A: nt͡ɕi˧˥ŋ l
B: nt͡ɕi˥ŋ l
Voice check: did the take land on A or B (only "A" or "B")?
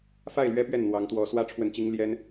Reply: B